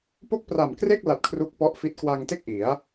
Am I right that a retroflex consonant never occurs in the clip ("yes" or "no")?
yes